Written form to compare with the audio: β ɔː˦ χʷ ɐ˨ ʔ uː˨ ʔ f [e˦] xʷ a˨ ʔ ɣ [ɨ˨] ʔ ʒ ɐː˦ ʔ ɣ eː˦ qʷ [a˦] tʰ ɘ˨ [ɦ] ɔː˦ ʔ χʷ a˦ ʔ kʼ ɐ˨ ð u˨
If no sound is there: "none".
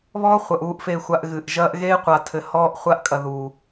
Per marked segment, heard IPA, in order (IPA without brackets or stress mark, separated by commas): e˨, ɨ˨, a˨, h